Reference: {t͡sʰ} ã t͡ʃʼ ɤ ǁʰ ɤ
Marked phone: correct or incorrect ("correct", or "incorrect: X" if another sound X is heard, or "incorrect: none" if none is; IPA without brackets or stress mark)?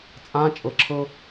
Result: incorrect: t͡sʼ